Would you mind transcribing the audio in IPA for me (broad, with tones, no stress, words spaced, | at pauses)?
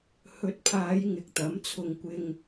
hɵ˨˥t̚pʰaː˨˧j ŋɪ˨k̚t̪ɐ˨˥mt͡sʰʊ˧ŋ kʷɪ˧ŋ